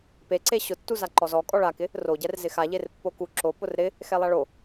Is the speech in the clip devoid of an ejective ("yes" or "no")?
no